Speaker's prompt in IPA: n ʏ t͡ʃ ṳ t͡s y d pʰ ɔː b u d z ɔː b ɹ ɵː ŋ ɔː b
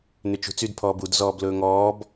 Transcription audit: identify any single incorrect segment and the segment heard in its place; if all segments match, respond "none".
ɹ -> l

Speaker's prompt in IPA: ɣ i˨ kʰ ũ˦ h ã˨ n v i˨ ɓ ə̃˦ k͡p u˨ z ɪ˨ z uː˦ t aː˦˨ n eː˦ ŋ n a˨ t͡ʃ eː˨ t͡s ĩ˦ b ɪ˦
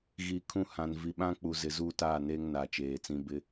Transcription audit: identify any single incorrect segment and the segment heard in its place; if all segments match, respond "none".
ə̃˦ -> ã˦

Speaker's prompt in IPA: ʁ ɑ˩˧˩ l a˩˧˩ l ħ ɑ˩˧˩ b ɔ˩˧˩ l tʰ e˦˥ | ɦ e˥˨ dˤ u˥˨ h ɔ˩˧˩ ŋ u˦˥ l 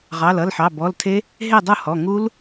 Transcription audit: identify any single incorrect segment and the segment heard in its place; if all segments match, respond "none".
a˩˧˩ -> ʌ˩˧˩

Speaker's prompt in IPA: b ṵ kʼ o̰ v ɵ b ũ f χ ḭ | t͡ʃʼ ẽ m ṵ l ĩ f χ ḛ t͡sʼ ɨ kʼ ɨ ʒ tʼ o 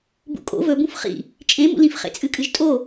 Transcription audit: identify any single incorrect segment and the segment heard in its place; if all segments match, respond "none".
none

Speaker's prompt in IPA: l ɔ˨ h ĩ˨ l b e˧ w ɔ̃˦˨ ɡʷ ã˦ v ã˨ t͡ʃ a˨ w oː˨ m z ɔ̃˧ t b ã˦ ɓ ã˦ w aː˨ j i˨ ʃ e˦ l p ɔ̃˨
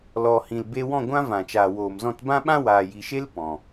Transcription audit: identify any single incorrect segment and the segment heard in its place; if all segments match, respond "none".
a˨ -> aː˨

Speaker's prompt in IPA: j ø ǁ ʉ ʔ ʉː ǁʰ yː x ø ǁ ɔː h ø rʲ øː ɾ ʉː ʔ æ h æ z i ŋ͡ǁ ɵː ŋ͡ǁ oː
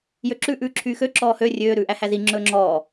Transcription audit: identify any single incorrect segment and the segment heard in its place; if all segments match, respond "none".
oː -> ɔː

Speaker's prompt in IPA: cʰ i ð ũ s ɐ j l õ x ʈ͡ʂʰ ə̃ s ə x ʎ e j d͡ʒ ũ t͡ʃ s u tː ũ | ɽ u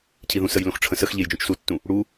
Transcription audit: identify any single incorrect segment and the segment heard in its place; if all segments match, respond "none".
ɐ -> ə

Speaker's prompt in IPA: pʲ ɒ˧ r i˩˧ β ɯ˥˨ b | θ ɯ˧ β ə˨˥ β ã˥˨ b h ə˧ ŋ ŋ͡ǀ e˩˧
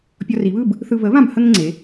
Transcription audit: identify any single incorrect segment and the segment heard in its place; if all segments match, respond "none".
none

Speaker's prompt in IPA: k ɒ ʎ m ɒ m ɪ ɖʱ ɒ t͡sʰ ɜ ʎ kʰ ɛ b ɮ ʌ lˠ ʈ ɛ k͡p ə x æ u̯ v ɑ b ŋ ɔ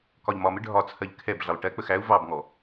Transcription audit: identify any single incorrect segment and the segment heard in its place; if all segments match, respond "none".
none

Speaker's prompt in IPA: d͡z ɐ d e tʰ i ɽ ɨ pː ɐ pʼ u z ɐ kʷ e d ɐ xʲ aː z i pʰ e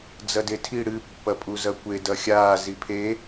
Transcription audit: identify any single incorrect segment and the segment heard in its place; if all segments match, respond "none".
none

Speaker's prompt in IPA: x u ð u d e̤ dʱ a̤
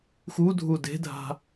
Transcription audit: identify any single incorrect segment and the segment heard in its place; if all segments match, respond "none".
ð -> dʱ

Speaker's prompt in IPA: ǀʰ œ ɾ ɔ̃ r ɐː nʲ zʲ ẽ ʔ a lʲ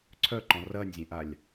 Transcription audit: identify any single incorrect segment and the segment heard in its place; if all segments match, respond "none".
ɾ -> ǃ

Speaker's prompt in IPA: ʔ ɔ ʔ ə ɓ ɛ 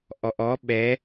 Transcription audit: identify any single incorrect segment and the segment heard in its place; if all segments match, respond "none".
ə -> ɔ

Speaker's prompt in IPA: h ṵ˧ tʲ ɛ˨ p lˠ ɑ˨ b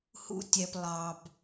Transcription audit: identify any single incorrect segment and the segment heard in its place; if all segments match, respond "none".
none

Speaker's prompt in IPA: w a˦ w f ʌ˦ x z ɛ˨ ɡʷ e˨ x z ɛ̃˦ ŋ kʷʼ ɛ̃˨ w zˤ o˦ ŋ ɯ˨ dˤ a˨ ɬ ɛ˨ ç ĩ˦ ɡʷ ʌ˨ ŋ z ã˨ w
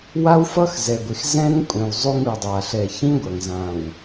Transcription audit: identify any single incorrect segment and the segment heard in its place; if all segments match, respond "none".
none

